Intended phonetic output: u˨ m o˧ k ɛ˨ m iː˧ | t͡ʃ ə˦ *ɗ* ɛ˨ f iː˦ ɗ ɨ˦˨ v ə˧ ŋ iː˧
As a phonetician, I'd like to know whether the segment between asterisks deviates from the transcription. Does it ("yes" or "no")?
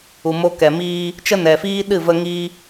yes